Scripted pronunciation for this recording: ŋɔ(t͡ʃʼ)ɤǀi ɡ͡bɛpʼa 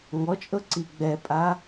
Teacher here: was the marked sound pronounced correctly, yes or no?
yes